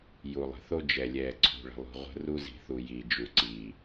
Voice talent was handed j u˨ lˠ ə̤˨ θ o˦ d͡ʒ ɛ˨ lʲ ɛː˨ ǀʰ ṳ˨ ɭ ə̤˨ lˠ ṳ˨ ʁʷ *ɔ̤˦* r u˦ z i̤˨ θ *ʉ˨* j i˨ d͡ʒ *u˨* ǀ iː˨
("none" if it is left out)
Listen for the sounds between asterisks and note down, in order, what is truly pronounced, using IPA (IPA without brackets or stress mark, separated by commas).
ə̤˦, u˨, u˨